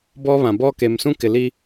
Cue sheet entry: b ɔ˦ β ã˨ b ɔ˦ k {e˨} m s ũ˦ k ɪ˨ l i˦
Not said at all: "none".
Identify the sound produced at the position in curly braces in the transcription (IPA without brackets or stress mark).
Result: e˨